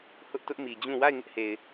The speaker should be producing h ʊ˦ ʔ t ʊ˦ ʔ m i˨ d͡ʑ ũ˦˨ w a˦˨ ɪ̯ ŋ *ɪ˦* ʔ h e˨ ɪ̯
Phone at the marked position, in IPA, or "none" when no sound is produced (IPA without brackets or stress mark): ɪ˦